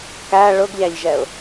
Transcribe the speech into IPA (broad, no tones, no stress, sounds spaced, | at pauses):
k æ ɭ ʊ ɡ ʎ æ ʎ ʒ ɛ ʊ̯